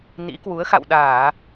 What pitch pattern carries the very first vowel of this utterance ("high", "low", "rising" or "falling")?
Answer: rising